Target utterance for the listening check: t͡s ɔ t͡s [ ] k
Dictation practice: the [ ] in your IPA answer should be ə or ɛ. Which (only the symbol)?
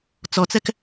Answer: ɛ